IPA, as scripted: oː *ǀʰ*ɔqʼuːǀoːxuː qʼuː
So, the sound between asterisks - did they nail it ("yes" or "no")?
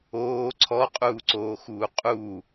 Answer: yes